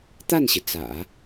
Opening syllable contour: falling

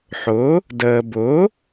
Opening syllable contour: rising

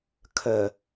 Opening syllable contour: low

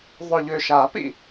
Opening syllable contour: low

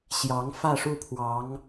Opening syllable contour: rising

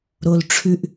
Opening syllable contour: high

